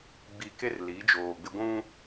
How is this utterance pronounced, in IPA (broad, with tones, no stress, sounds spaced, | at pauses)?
ɡ͡b i˨ k e˦ r l i˨˦ d͡ʒ oː˨ ɡ͡b ɪ˦ ɡʷ ũ˦